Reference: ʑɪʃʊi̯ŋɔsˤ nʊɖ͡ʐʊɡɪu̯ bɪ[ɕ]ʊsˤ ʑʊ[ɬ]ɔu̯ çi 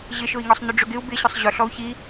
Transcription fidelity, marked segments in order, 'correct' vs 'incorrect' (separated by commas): correct, correct